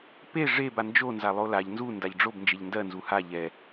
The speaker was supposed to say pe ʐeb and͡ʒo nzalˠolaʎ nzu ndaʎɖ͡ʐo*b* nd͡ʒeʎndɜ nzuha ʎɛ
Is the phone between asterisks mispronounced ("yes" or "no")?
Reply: no